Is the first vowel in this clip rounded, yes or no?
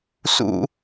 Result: yes